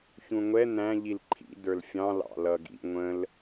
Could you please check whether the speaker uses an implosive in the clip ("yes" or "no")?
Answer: no